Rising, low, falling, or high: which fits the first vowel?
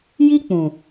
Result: high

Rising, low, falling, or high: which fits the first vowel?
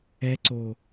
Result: rising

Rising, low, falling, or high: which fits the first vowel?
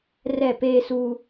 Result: falling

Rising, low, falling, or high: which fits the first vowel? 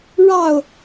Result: falling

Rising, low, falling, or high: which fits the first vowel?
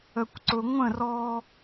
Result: low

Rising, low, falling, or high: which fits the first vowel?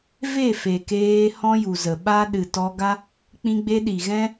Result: falling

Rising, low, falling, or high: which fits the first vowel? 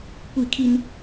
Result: falling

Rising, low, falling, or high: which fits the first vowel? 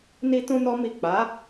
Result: high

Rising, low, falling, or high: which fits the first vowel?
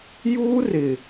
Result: high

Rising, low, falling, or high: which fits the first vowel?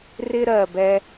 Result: high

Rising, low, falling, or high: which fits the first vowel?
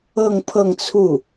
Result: falling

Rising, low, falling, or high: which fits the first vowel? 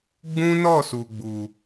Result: high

